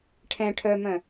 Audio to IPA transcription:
ʈʰ ɛ̃ ʈʰ œ m œ̃

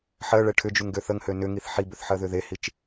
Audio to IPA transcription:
ħ ɜ ɭ ɛ ʈʰ ʏ d͡ʒ u ŋ ɡ ø θ ə ŋ h ø n ʏ ŋ i θ ħ i b ʏ θ ħ ɜ ð ʏ ð e h i t͡ʃ

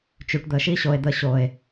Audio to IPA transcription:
t͡ʃ y˨ ʈ d̪ əː˨ ʃ i˦ ɕ o˨ e̯ d̪ ə˦˨ ɕ oː˨ e̯

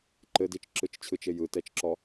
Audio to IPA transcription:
ǃ ɘ d i t͡ʃ ǁ ɯ t͡ʃ t͡ɕʰ ɯ t͡ʃ e j ɯ t ɛ t͡ʃ ǁ ɔ

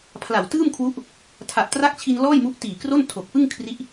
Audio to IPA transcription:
pʰ l a˨˩ w t ɯː˥˩ m kʰ w u˦˥ ʔ | tʰ a˨˩ ʔ t r a˦˥ k̚ t͡ɕʰ i˧ n l ɔː˥˩ j m u˦˥ ʔ t iː˨˩ k r o˥˩ n tʰ o˨˩ k̚ p ɯ˥˩ ŋ kʰ r i˦˥ ʔ

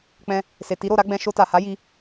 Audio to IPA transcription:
k͡p ɛ̃˧ | s e˨ t i˨˦ ɾ o˦˨ ɾ a˨˦ ɡ͡b ɛ̃˧ ʃ o˧ t a˨ h a˨˦ j i˦

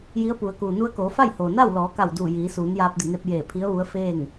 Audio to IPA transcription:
j i˧˥ ə̯ p u˩˧ ə̯ k uː˩ n u˧ ə̯ k oː˩˧ f a˥˨ j h oː˩ n a˥˨ w l ɔː˩˧ k a˧˩ w d uː˧˩ j iː˩˧ s uː˩˧ n j aː˧ p̚ d i˧˩ n e˧ p̚ j eː˧˩ pʰ i˧˥ ə̯ ʋ u˧˥ ə̯ f eː˥˨ ŋ

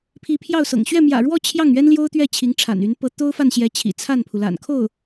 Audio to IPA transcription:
pʰ i˧˥ pʰ j ɑ˥˩ ʊ̯ s ɤ̰˨˩ ŋ ɕ ɥ ɛ˥˩ m j ä̰˨˩ ɻ w ɔ˥˧ t͡ɕʰ j ɑ˥˩ ŋ ɥ ɛ˥ n l j o˥ ʊ̯ t̪ ɥ ɛ˥˩ t͡ɕʰ i˧˥ ŋ ʈ͡ʂʰ a̰˨˩ n y˧˥ n p ɤ˧˥ t̪ o˥ ʊ̯ f a˥˩ n ɕ j ɛ˧˥ t͡ɕʰ ḭ˨˩ t͡sʰ a˥˩ n pʰ u˩ l a̰˨˩ n kʰ o˥˩ ʊ̯

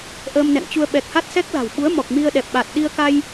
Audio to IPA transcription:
ʔ əː˧ m n ɛ̰˧˨ ŋ t͡ɕ u˧ ə̯ ɓ ɛ˨˩ k̚ h a˦˥ t̚ s ɛ˦˥ k̚ l a̤˨˩ w ɓ u˨˦ ə̯ m ɔ˨˩ k̚ m i˧ ə̯ ɗ ɛ˨˩ p̚ ɓ a˨˩ t̚ ɗ i˧ ə̯ k a˧ j

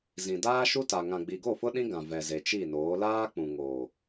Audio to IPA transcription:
z ĩ˨ d aː˦ ʃ u˦ t a˨ ŋ ã˨ ɡ͡b i˨ ɡ o˦˨ f ʊ˦ ɗ ĩ˦ ɡ ã˨ v ɛ˨ z e˨ t͡ʃ i˦˨ n oː˨˦ l aː˦ k͡p ũ˨ ŋ o˨

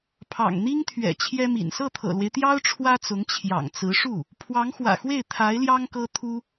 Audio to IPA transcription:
pʰ ɑ̰˨˩ ŋ n̪ i˥ ŋ t̪ʰ ɥ ɛ̰˨˩ t͡ɕʰ j ɛ˥ m ḭ˨˩ n s ɤ˥˩ t̪ʰ ɤ̰˨˩ l w e˦ ɪ̯ t̪ j ɑ˥ ʊ̯ ʈ͡ʂʰ w ä˥ t͡s ʊ˧˥ ŋ t͡ɕʰ j ɑ̰˨˩ ŋ t͡s ɹ̩˧˥ ʂ u˥˩ | pʰ w ɑ˧˥ ŋ x w ä̰˨˩ x w e˥˩ ɪ̯ t̪ʰ a˧˥ ɪ̯ l j ɑ˥ ŋ k ɤ˥ t̪ʰ u˥

